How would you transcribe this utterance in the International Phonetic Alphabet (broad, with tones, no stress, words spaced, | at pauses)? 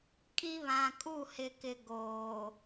kʼi˦βã˨ kʼu˦˨hɪ˨kɪ˨ ɡoː˨